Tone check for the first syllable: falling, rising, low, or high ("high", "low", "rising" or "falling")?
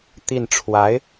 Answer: falling